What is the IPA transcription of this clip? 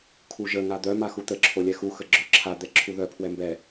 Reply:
kʰ u ʒ ə ŋ a d̪ œ m a x u t̪ ə ǁʰ o lʲ ɛ x u x ə ɡ͡ǁ œ ǁʰ a d̪ ɛ ǁʰ u ð œ pʰ w ɛ m b ɛ

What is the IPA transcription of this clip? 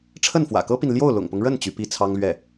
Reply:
ʈ͡ʂʰ ə˥˩ n f w ä̰˨˩ k ɤ˥ p i˨ n l j o˥˩ ʊ̯ l ʊ̰˨˩ ŋ p ʊ˦ ŋ ɻ ə˥˩ n t͡ɕ y˧˥ p i˥ t͡sʰ ɑ˥ ŋ l ɥ ɛ˥˩

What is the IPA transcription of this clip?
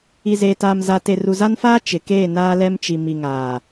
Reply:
i˨ z eː˨ t aː˨ m z a˨ t e˨ r u˨ z a˦ n f aː˦ t͡ʃ ɪ˨˦ k eː˦˨ n aː˦ l ɛ˦ m t͡ʃ i˨ m i˨ ŋ aː˨

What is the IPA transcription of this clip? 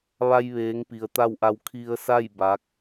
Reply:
ʋ a˧ j ʋ eː˩˧ ŋ p i˩ ə̯ t̪ a˥˨ w ʔ a˧ w kʰ i˧ ə̯ s a˥˨ j b a˧˥ k̚

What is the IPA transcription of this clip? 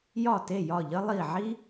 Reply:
j ɒ˥˩ t e˥˩ j ɒ˥˩ ʎ ə˥ lˠ i˥˩ ʕ i˥

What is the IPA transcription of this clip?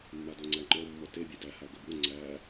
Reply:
mː a d o ŋ͡ǀ æ ŋ͡ǃ ɔ mː ɔ t e bʲ e d æ h a ɡ ə b u ŋ͡ǀ æ

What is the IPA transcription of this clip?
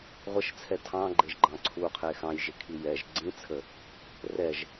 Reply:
ʁʷ ə ʃ t͡sʰ ɛ tʰ ɑ̃ ɡ͡ǃ e ʒ ɡ͡ǃ ɑ̃ ǀʰ u qʰ e x ɑ̃ j ʒ ɪ kʰ i j ɛ ʒ ɡ͡ǀ ĩ t͡sʰ ə | r ɛ ʒ

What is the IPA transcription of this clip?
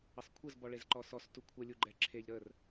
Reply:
ə sˤ kʷʰ ə z b ɔ ɭ e z ǃ ɔ s ɔ s t u kʷʰ ə lʲ u ɡ͡ǃ ɛ ǁʰ e ʎ ɾ ə r

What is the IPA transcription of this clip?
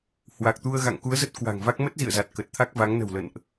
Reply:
h w a˨˩ k̚ t̪ u˧ ə̯ ɣ a̰˧˨ ŋ k u˨˦ ə̯ z ə˦˥ t̚ k w a̤˨˩ ŋ v a˦˥ k̚ m ə˦˥ t̚ z ḭ˧˨ ə̯ z a˨˩ t̚ k ə˨˩ t̚ t̪ʰ a˦˥ k̚ v a˨˦ ŋ n ə̤˨˩ w l ə̰˧˨ n ʔ

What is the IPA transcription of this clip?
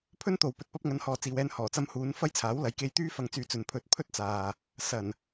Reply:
pʰ ɵ˥ n t̪ o˨ w p ɵ˨ t̚ p ɐ˧ p̚ ŋ ɐ˨˧ n h ɔː˨ t͡s iː˨ w ɛː˧ n h ɔː˨˩ t͡s ɐ˧ m h uː˨˧ n f ɐ˥ j t͡sʰ aː˨˥ w l ɐ˨˥ j k e˧ j t̪ yː˥ f ɐ˧ ŋ t͡s yː˨˧ t͡s ɵ˨ n pʰ ɵ˨ t̚ pʰ ɵ˥ t̚ t͡s aː˨ | s ɐ˨˩ n

